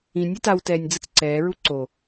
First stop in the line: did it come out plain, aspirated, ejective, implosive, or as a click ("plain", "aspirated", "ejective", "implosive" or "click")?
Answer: plain